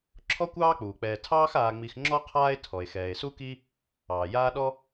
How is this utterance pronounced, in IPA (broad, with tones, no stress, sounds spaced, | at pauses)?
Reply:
ǁʰ ɔ˥ kʷ ɑː˥ k͡p uː˩ k͡p ɛː˨ tʰ ɑː˦ x aː˨ ŋ͡m i˨ x ŋ͡ǁ ɔ˦ qʰ aː˦ e̯ tʰ ɔ˩ e̯ x ɛː˩ e̯ s u˥ k i˥ | ɑː˩ j aː˦ ɗ ɔ˥